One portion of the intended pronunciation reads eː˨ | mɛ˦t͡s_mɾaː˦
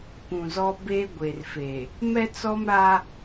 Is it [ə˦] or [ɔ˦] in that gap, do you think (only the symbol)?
ɔ˦